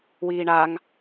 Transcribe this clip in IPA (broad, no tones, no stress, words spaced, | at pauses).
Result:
wiːɳaŋ